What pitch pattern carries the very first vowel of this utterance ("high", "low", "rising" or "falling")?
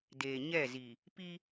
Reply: low